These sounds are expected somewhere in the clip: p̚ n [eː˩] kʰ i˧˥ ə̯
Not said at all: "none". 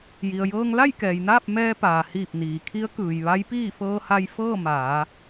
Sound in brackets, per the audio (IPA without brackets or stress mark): iː˩